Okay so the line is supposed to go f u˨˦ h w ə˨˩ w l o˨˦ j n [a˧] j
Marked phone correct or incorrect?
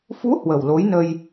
incorrect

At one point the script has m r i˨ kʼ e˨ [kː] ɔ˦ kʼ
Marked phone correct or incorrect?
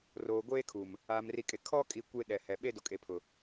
incorrect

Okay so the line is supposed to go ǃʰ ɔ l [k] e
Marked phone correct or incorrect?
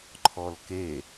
correct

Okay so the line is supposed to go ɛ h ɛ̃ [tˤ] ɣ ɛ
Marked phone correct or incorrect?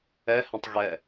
correct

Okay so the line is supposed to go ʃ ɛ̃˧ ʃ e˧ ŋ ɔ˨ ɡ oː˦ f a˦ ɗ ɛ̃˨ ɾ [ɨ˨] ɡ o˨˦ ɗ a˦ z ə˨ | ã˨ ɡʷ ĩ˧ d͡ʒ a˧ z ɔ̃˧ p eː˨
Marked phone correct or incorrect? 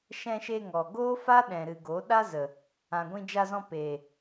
correct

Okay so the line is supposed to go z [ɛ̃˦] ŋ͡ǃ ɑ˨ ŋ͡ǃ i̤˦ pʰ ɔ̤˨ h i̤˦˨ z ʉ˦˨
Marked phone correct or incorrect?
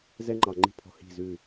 incorrect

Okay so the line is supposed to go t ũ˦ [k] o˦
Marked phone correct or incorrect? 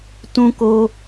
correct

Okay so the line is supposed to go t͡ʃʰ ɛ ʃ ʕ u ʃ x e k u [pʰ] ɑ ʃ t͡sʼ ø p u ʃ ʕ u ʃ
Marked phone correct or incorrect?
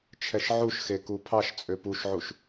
correct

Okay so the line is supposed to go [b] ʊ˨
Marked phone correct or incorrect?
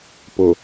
incorrect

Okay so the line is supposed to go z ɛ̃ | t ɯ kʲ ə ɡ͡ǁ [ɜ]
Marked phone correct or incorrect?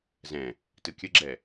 incorrect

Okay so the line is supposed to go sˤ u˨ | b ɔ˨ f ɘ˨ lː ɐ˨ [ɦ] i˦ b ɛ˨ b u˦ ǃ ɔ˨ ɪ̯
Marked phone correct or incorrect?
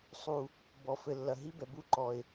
correct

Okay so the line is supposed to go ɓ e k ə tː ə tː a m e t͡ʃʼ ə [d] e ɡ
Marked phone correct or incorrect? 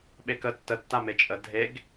incorrect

